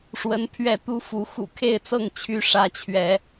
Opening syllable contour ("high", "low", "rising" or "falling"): rising